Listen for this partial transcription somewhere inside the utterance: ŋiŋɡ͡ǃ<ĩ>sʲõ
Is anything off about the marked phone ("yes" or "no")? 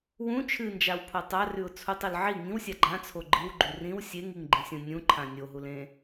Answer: no